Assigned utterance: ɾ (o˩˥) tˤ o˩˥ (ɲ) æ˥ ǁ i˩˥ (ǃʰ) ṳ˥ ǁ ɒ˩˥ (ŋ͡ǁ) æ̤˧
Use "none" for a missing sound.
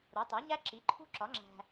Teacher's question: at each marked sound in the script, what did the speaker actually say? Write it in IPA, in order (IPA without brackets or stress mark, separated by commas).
o˩˥, ɲ, ǃʰ, ŋ͡ǁ